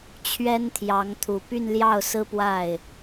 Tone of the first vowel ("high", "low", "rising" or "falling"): high